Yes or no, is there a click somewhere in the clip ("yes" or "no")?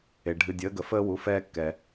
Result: no